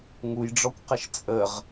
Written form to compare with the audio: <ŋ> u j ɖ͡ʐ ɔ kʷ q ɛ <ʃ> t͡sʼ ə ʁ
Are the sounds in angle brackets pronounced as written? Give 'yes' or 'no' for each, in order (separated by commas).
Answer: yes, yes